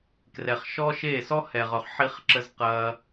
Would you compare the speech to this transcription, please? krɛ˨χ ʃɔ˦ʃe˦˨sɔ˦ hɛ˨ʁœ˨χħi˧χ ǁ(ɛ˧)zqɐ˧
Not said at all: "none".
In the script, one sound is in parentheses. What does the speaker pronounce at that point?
ə˧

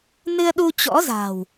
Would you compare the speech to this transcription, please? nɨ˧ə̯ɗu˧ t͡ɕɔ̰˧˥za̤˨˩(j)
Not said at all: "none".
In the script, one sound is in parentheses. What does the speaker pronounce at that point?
w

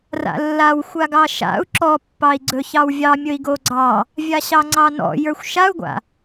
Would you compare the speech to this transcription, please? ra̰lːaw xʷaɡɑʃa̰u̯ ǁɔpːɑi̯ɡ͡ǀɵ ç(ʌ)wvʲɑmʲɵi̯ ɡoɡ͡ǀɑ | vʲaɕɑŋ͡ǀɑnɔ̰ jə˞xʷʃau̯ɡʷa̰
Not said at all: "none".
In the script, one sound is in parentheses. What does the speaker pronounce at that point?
ɑ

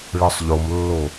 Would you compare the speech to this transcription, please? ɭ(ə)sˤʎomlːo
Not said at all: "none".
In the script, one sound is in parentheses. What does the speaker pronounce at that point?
ɯ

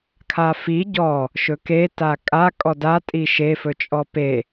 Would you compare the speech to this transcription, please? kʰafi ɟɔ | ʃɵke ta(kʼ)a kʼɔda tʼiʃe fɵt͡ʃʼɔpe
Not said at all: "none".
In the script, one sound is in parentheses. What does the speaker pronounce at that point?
kʼ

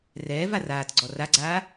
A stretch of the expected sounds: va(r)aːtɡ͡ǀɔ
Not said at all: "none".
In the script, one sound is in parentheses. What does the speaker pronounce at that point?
r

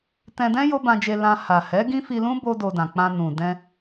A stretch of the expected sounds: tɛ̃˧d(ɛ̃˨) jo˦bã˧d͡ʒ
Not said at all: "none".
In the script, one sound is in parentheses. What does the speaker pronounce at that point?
ɛ̃˦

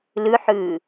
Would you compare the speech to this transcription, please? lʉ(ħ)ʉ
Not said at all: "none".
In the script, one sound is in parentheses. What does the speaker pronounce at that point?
ħ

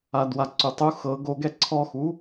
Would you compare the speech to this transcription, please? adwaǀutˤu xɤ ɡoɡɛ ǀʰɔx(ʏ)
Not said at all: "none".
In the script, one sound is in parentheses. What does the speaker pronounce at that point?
u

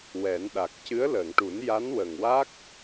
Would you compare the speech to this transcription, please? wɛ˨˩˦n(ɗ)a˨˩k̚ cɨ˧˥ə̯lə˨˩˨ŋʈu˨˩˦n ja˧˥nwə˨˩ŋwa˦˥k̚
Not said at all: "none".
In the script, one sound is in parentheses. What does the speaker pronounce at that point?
ɗ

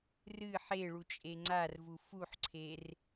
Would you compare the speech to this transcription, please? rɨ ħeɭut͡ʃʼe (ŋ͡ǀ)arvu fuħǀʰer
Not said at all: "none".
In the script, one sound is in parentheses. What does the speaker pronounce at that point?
ŋ͡ǀ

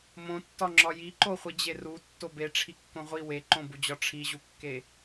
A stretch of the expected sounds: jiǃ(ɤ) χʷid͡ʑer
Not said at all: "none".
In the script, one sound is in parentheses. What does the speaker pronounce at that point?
o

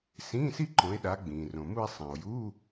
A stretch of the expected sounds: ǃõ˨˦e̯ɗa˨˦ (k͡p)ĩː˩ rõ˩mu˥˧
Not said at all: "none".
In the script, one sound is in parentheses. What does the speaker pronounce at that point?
ɡ͡b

